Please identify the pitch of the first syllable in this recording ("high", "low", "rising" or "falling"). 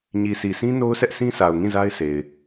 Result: low